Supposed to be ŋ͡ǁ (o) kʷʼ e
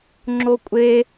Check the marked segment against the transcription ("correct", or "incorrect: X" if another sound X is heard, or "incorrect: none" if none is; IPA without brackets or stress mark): correct